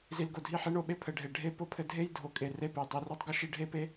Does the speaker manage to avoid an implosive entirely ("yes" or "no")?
no